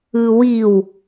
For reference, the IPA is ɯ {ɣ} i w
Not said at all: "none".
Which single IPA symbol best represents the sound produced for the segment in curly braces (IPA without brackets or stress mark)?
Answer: w